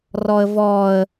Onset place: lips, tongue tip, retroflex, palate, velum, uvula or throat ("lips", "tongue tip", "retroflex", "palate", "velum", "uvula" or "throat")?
tongue tip